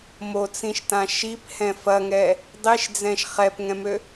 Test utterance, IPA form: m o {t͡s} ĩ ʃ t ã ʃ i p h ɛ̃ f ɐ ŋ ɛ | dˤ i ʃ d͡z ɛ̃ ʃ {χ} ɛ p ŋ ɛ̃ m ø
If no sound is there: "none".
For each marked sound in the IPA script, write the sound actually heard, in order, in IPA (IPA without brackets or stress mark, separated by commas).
t͡s, χ